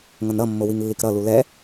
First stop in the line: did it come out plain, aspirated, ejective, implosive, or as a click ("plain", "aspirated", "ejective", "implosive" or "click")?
plain